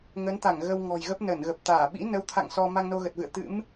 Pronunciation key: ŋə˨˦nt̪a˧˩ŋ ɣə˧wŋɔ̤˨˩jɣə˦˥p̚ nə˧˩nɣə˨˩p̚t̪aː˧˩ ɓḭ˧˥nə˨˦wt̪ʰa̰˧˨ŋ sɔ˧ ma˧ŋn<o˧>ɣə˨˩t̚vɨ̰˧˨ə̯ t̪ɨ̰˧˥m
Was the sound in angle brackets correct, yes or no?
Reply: yes